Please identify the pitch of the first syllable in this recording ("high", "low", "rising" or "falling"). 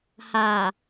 low